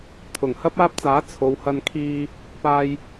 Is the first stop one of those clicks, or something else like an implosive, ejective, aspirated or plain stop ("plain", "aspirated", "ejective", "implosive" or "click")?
aspirated